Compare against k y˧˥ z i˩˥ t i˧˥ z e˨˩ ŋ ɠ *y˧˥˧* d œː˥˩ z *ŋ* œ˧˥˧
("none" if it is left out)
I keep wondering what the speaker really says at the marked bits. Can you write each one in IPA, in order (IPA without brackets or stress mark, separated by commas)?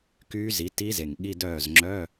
i˧˥˧, ŋ͡ǁ